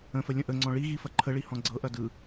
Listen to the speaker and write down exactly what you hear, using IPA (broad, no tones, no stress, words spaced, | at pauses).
ə̃fə lʲə̃ʔəŋ͡ǀɔ̃ ɭi ɣifɐǃʰəɭi hɔ̃ɡ͡ǀɤʔɐ dɯ